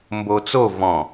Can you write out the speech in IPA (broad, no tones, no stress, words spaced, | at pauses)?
mbot͡so vɔ̃